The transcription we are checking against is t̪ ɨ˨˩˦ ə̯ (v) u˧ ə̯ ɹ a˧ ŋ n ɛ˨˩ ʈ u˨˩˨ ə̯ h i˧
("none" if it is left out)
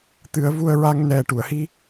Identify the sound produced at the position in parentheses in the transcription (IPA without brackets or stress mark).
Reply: v